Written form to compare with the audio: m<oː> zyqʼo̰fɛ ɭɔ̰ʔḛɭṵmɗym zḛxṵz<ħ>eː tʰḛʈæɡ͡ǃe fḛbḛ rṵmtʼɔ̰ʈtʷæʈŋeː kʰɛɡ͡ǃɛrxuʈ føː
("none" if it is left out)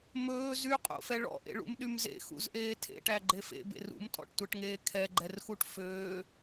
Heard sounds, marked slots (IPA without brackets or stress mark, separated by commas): ɵː, ʔ